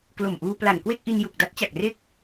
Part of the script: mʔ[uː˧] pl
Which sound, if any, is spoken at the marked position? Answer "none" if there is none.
uː˧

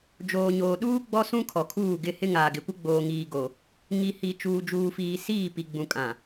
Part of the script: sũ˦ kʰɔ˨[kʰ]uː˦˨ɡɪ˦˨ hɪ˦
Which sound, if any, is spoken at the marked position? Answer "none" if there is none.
kʰ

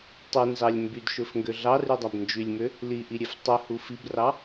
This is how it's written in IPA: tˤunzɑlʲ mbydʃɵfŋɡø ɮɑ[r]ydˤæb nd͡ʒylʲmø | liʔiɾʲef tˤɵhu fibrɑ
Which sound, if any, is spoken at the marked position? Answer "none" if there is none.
r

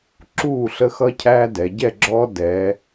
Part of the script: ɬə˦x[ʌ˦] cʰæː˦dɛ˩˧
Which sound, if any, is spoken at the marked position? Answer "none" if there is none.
ʌ˦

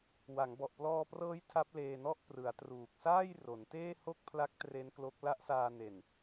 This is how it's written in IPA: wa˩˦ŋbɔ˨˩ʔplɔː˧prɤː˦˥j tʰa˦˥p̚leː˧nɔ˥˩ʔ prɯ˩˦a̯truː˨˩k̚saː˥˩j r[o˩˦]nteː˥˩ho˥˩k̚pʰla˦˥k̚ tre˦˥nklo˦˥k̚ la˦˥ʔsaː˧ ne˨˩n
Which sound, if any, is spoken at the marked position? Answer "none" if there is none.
o˩˦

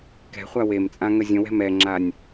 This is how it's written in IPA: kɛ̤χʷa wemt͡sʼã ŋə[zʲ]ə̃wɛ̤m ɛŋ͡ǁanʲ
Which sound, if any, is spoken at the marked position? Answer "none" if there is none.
zʲ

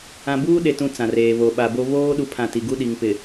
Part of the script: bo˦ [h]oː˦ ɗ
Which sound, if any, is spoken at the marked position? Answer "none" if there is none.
β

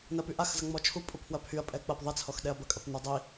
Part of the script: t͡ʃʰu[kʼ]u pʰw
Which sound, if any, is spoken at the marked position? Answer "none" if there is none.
pʼ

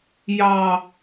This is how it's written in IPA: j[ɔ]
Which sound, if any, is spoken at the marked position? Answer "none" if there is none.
ɑ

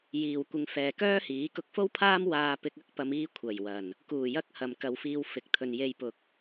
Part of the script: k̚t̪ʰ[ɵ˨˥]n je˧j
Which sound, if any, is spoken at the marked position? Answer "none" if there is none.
ɵ˨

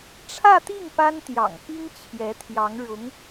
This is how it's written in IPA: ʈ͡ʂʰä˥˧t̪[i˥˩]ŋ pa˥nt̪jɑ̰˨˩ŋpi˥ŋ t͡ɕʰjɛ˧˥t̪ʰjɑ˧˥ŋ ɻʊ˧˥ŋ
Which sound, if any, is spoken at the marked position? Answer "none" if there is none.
i˥˩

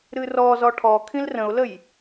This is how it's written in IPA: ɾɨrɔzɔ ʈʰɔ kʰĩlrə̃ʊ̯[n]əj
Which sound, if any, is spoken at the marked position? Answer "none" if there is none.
l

